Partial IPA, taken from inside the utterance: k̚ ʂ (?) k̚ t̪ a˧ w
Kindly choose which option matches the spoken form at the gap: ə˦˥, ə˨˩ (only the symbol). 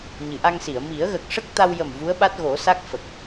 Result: ə˦˥